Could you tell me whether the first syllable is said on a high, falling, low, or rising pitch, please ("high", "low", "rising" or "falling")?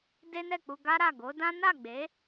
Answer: high